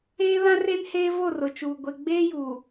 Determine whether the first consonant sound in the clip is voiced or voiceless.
voiced